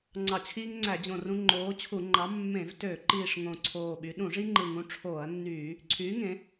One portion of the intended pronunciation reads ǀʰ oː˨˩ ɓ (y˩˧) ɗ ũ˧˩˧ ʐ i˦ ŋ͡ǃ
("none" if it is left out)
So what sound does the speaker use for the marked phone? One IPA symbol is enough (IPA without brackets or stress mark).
y˩˧